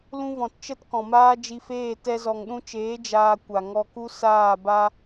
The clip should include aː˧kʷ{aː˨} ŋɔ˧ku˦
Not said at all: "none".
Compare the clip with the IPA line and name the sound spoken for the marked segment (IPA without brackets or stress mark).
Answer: a˨